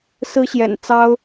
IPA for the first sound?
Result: s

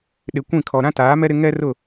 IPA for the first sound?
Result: ɗ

